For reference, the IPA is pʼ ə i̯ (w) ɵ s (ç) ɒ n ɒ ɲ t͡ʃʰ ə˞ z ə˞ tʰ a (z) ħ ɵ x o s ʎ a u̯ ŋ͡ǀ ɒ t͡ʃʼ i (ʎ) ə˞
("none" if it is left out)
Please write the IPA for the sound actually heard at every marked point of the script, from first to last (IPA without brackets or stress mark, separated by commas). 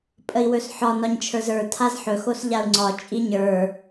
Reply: w, ħ, z, ɲ